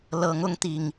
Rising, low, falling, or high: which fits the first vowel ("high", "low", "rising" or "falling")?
rising